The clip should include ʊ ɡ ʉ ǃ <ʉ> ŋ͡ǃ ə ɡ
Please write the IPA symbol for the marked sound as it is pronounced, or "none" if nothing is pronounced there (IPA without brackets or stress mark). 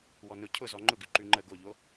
ʉ